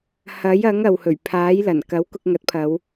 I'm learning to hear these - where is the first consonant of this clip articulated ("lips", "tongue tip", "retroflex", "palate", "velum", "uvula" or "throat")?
throat